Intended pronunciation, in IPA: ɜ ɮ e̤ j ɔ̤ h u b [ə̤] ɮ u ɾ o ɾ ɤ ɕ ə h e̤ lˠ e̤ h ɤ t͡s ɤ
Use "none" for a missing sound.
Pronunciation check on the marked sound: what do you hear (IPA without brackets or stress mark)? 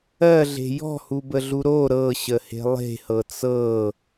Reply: ə